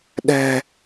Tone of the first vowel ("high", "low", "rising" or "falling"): low